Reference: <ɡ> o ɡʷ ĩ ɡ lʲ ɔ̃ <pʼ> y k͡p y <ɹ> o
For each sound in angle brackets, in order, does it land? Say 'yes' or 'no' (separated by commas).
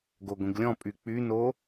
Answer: yes, yes, no